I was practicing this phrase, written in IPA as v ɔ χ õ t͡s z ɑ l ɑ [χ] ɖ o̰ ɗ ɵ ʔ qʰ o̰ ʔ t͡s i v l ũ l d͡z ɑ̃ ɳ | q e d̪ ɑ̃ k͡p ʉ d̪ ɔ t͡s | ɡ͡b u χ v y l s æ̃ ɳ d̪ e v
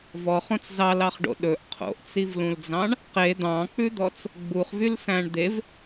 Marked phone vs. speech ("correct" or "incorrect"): correct